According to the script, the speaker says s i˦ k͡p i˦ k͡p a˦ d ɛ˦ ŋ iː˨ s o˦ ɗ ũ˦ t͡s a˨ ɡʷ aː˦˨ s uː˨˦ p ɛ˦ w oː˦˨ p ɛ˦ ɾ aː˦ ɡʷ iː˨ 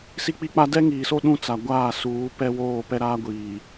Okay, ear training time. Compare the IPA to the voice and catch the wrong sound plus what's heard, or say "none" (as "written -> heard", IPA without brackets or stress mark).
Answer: none